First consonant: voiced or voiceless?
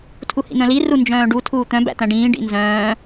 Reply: voiceless